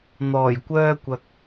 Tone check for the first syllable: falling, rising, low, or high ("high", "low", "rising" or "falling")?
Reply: low